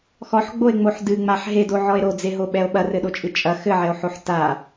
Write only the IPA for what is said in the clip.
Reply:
x ɔ ħ ɡ͡b o e̯ ŋ͡m o ħ d ɨ ŋ͡m a ħ ɦ e d o ʕ ɔ e̯ ɾ o d͡z e ɦ o ɓ ɛ o̯ ɓ ɐ r ɘ ɗ o t͡ʃʼ ɨ t͡ʃʼ ɐ x ɘ ʕ ɛ o̯ ħ o ħ t a

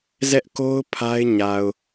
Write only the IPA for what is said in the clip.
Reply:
z ɛ˦ ʔ k o˦ ʊ̯ pʰ a˦ ɪ̯ ɲ a˨ ʊ̯

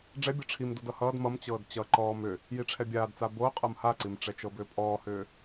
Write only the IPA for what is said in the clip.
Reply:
ɖ͡ʐ ɛ bʲ ɤ ʈ͡ʂʰ i m d o d ʌ h ʌː d m ʌ m t͡ɕ ɤː d t͡ɕ ʌ ǃ ɔː m ʏ | j i ʈ͡ʂʰ ɛ bʲ aː d t͡s a b o qʼ ɤ m h a ǀ i m ʈ͡ʂ ɛ t͡ʃ ɤ b ʏː pʼ ɔː h ʏː

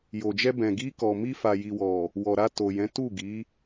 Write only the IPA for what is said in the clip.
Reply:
j o˨ d͡ʒ ɛ˧ b ɛ̃˨ ɡ i˧ k ɔ˨ m i˧ f a˨ j i˨ w ɔ˨ | w ɔ˨ ɾ a˧ t o˨ j ɛ̃˨˦ t u˦˨ ɡ i˨˦

